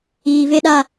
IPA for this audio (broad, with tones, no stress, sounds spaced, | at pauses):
iː˨ v e˦ ɗ a˦